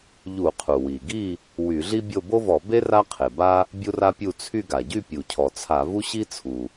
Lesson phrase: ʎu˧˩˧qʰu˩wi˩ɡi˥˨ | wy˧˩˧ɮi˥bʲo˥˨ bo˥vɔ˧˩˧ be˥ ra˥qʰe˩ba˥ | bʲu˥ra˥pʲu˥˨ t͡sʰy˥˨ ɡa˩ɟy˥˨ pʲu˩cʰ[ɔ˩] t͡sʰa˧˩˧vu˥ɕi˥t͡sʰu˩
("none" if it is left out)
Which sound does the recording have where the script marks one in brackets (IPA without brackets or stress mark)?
ɔ˩